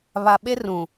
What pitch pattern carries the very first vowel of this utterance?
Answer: low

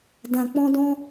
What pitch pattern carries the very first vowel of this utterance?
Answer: low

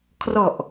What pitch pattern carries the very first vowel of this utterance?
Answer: low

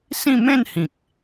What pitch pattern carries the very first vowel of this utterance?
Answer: falling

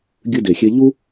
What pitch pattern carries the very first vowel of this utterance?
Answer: high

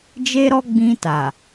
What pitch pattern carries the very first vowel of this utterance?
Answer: high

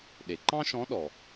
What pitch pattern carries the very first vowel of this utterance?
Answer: low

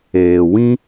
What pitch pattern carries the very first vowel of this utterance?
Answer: low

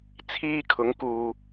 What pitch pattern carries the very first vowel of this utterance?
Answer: high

